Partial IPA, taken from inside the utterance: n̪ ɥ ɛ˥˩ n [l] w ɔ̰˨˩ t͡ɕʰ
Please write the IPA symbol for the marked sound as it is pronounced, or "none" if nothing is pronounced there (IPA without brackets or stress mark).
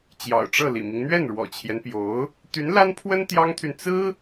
ɻ